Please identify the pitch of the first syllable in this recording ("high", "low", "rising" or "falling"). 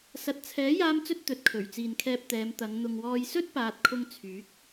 low